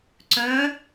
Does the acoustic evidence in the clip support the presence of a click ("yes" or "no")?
yes